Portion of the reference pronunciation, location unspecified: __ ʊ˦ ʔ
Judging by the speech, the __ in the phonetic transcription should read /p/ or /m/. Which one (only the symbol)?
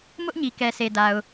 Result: m